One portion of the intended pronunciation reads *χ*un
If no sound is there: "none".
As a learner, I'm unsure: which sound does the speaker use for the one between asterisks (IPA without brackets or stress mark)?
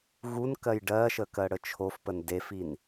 ɣ